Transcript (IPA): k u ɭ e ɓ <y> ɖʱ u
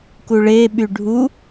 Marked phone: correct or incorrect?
correct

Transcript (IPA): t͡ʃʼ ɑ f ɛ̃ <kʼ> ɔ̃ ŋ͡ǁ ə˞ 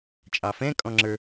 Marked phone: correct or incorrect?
correct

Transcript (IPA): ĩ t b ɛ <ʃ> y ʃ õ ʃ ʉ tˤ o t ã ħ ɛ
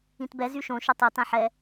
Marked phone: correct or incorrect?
incorrect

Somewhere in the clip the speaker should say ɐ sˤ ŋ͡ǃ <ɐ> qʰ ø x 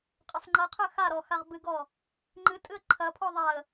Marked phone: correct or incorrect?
correct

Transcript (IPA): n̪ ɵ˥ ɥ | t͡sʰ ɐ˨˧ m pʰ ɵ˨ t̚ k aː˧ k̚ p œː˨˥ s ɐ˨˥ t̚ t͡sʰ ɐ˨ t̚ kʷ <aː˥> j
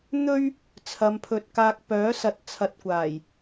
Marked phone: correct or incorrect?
incorrect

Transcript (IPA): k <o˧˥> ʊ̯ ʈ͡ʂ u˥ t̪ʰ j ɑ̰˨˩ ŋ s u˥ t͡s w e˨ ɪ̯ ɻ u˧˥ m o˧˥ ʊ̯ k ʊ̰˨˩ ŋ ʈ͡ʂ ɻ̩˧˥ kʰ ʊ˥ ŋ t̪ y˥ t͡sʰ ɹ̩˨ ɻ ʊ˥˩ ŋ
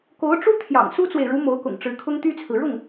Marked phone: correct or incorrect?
correct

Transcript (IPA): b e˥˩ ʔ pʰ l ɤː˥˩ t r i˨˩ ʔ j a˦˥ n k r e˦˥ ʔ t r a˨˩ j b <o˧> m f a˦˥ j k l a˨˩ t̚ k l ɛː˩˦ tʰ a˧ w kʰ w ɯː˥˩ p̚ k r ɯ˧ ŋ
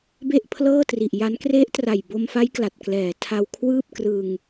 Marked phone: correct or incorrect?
correct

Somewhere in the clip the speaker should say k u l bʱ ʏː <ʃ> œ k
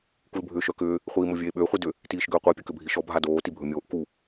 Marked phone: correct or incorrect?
correct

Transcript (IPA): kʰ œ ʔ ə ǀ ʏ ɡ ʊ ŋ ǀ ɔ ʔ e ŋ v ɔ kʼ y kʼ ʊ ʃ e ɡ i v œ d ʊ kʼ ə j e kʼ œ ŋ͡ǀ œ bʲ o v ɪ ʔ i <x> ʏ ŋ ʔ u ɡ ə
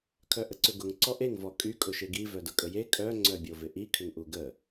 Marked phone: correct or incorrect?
incorrect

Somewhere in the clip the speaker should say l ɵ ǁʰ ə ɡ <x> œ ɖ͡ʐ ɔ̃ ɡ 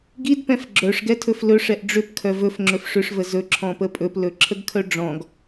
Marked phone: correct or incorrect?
incorrect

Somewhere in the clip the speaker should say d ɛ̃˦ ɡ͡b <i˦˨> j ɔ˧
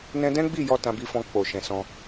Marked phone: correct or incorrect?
correct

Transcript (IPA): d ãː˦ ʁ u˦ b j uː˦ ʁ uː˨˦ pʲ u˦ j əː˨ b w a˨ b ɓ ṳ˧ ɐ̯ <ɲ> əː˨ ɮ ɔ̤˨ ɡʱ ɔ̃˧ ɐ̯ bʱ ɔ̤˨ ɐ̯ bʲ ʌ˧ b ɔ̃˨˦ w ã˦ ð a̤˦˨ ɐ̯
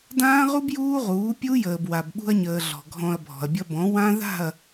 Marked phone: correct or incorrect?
correct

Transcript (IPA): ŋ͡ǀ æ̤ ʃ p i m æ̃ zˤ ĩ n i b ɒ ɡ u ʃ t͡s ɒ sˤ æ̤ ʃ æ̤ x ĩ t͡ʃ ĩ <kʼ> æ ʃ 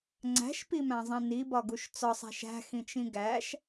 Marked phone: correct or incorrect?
incorrect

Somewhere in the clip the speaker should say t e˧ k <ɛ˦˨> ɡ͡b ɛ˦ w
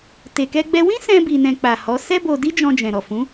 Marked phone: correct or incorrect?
incorrect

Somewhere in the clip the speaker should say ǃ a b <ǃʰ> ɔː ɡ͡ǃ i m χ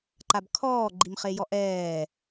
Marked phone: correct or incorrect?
incorrect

